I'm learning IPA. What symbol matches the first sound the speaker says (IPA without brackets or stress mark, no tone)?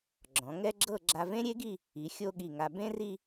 ɡ͡ǁ